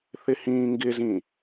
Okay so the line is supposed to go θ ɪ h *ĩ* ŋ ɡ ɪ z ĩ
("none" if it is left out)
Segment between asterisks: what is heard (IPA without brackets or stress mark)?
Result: ĩː